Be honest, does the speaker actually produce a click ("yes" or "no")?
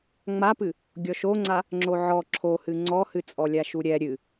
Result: yes